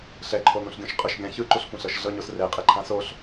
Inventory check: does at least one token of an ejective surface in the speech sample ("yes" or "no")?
yes